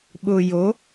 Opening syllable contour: low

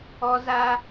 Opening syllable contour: high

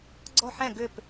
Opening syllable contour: falling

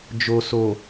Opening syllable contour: low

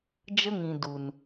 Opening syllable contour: high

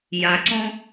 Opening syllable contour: low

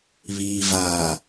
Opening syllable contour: low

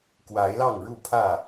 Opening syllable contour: rising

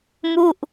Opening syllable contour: falling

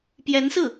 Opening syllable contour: rising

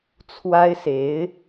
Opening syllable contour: high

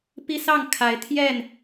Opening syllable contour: high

